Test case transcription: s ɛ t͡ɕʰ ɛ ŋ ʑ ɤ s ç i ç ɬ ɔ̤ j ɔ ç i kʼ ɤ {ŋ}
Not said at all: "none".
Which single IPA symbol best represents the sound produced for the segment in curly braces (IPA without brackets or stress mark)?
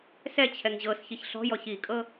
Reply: none